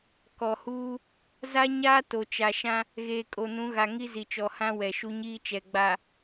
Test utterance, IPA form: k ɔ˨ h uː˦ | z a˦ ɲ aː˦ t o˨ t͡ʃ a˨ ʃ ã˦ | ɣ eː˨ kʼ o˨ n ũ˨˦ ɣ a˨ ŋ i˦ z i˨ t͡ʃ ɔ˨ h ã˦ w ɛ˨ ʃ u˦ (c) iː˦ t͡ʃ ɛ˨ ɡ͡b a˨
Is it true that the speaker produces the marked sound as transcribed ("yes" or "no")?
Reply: no